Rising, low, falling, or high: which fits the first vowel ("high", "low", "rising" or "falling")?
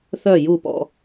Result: falling